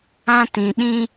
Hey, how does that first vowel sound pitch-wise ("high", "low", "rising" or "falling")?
high